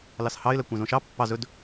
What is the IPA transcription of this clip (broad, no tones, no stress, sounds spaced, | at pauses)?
l ɑ s h ɑ ɪ̯ l ɛ kʷ æ̃ z õ ʃ ɑ pː ɑ z ɵ d